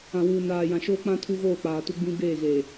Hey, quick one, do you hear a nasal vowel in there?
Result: yes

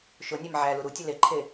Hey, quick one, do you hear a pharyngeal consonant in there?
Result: yes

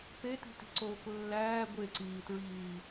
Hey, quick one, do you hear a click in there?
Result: yes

